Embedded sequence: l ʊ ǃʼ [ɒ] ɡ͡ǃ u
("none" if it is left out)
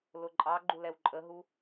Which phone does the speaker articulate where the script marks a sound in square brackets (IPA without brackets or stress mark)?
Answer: ɑ